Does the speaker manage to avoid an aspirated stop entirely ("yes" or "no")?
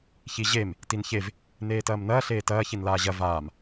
yes